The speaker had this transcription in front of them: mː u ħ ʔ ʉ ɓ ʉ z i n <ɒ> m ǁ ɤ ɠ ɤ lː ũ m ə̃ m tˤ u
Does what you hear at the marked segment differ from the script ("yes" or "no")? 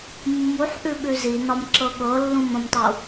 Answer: no